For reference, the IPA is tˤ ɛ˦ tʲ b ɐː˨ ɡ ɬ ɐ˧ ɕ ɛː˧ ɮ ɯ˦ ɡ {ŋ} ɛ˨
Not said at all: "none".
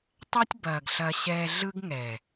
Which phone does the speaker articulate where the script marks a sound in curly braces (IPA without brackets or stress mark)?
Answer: ŋ